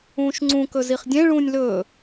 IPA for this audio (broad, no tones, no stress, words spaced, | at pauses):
ũːʃŋ͡ǀũ kɵziχdʲẽ ɭũːnʲlɵː